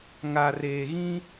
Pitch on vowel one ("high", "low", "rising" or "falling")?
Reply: low